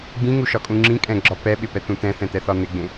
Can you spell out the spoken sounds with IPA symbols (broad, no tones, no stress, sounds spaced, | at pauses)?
ɡ͡b ĩ ŋ u ʃ ɒ kʼ ũ ŋ͡ǁ ĩ kʼ ɛ̃ ɡ͡ǁ ɒ p ɛ ɓ ɪ p ɛ t̪ ũ t̪ ɛ̃ θ ɛ̃ t̪ ɛ θ ɒ n̪ ɪ ɡ͡b ẽ